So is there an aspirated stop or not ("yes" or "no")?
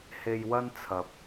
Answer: yes